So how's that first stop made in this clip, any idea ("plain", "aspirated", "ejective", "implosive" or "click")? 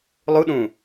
implosive